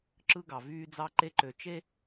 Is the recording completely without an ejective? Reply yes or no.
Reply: yes